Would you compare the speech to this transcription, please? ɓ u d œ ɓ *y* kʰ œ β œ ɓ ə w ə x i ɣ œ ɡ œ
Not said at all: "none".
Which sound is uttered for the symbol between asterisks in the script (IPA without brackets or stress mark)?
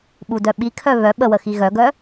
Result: i